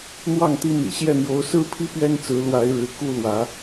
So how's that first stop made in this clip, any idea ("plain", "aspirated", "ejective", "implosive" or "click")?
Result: plain